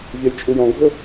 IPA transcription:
vʲ ɔ j t͡ʃʼ u j ɔ̃ ɡʱ ʊ

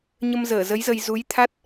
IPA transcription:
ɲ ə˧ m z əː˧˩ z ə˨˦ j z ə˧ j z u˨˦ j t̪ʰ a˦˥ t̚

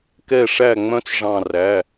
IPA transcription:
k ɛ˧˩ ʂ æ˧˩ ŋ͡m œ̃˧˥ t͡s ʐ ɑ̃˧˩ r æ˩˧˩

